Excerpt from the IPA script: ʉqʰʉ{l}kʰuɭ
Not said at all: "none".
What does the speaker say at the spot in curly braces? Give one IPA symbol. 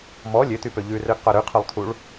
lˠ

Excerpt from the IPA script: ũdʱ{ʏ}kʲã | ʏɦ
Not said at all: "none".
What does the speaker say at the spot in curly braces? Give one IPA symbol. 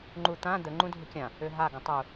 ʏ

